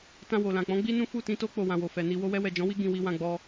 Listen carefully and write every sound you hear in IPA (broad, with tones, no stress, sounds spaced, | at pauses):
t ã˧ w o˨ l ã˨ k͡p ɔ̃˨˦ ɡ͡b i˦ n ũ˦ f u˦˨ t ĩ˨˦ t o˦ k͡p o˧ w ã˨ w o˨ f ɛ˨ n i˧ w o˧ w ɛ˧ w ɛ˨ d͡ʒ ɔ̃˨˦ w i˦ ɡ ĩ˧ w i˧ w ã˧ ɡ͡b ɔ˧